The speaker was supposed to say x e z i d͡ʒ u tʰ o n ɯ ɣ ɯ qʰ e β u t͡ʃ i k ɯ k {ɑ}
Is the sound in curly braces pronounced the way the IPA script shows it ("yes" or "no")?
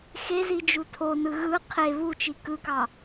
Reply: yes